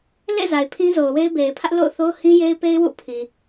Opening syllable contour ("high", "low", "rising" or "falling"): falling